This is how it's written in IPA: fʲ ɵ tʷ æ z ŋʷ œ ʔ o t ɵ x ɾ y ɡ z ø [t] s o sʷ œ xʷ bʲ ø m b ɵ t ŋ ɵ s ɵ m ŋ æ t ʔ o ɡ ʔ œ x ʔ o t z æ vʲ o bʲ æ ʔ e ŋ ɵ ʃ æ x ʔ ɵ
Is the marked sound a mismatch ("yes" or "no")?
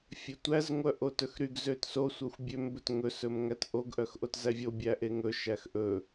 no